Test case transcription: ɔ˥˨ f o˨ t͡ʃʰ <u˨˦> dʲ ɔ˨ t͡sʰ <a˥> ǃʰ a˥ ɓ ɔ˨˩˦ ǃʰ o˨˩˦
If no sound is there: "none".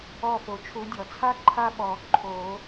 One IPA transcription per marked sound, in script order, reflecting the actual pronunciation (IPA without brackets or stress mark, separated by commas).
u˨˦, a˥